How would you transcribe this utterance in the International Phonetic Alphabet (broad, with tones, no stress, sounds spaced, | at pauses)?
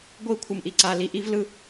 ɡʷ i˦˨ kʷʰ ɯ˨ m ʔ i˨ ǀ a˨ l i˨ ʔ i˦ v l ɯ˦